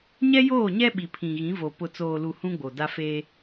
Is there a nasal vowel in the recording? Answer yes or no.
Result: yes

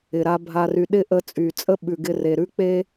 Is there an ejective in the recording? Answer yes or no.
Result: yes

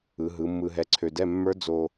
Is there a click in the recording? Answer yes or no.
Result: yes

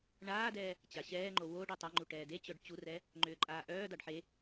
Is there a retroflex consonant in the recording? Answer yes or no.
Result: yes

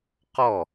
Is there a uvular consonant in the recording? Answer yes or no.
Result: yes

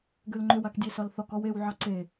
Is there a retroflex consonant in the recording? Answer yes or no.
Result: no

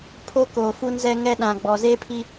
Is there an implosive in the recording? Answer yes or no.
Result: yes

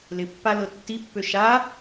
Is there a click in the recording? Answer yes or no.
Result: no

